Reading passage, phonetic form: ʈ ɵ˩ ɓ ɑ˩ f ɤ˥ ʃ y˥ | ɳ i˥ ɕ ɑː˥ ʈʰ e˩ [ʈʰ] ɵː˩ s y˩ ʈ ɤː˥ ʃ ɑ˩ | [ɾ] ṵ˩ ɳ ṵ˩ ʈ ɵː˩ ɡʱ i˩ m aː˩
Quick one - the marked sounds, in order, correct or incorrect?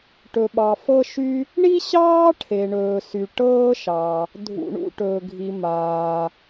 incorrect: ɳ, incorrect: dʱ

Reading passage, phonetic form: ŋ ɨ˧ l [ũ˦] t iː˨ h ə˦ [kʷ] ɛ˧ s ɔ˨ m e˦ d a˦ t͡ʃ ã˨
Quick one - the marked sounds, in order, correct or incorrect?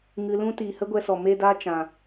correct, incorrect: ɡʷ

